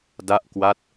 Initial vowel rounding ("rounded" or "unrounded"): unrounded